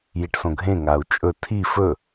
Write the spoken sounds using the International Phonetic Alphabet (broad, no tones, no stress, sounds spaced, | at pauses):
j i ʈ s õ ɡʱ ẽ ŋ a u̯ t͡ʃʼ ɵ tʰ i f ɵ